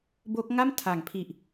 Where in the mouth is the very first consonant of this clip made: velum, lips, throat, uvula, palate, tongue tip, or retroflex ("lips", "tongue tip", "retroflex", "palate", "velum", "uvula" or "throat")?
lips